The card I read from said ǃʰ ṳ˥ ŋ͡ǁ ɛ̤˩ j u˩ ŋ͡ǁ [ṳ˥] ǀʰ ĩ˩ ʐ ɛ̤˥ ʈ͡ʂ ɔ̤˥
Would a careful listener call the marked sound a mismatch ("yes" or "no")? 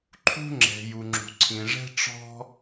yes